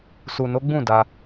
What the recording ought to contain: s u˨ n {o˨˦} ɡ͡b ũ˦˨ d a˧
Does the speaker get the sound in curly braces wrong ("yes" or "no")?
no